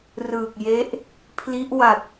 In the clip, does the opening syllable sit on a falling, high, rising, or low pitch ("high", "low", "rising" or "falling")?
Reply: low